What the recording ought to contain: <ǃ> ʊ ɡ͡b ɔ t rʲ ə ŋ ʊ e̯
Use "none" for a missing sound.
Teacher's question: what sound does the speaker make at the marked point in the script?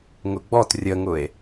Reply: ŋ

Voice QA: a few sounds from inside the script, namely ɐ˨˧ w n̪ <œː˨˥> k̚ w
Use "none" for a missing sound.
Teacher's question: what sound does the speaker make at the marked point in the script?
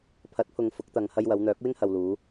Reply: œː˨˥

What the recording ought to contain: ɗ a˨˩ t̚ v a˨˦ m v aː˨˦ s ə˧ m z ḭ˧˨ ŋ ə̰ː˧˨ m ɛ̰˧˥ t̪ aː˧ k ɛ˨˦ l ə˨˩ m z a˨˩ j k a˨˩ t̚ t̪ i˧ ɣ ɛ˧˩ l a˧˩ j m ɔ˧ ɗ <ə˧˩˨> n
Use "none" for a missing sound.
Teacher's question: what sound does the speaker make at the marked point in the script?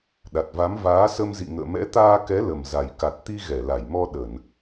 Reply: ə˧˩˨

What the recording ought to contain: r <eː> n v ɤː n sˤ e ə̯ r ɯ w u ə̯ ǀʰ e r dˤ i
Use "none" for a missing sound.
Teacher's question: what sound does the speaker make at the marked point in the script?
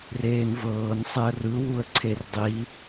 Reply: eː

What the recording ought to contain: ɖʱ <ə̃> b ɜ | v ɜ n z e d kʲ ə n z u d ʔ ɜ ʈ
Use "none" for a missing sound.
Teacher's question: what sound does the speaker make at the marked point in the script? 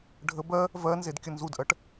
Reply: ə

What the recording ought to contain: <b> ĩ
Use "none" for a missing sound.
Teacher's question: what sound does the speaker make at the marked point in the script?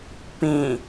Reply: p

